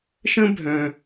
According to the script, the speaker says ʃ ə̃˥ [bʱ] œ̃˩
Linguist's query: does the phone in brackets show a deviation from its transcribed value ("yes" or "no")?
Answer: no